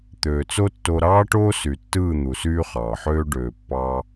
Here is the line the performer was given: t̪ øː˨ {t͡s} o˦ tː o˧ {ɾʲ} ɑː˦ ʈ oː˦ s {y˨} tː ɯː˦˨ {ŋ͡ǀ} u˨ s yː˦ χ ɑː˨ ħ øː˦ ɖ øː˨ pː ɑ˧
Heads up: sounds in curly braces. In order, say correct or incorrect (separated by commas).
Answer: correct, incorrect, correct, incorrect